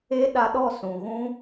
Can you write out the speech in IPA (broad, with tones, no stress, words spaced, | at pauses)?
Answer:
e˦ ɗa˧ɗɔ˦˨ sũ˨ɣũ˦